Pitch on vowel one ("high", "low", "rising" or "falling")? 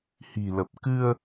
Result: low